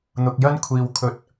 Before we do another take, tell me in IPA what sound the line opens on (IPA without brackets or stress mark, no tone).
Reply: n̪